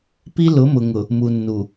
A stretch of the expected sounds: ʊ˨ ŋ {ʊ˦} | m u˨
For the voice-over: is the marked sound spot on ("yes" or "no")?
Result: no